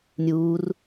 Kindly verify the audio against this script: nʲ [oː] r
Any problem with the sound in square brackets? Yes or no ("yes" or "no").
yes